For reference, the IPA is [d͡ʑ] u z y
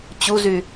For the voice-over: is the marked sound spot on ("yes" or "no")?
no